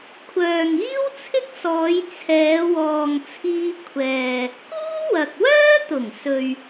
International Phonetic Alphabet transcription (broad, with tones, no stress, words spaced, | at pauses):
kʷʰœː˨ŋiː˥wt͡sʰɪ˥k̚sɔː˨˧j t͡sʰɛː˨˧wɔː˨ŋt͡sʰiː˧ kʷʰɛː˨ | kuː˥wɐ˨k̚wœː˥t̪ʊ˨˩ŋ sɵ˨ɥ